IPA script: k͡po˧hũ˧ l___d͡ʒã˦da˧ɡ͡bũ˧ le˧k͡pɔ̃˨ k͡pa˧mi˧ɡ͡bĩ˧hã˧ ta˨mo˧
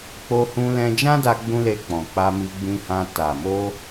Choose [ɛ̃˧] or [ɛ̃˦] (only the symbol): ɛ̃˧